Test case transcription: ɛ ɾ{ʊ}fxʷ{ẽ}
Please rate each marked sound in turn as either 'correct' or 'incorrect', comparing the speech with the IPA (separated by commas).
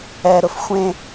correct, correct